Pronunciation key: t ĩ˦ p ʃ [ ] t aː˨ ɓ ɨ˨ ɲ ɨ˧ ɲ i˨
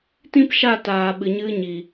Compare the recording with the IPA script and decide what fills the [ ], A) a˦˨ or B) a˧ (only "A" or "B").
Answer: A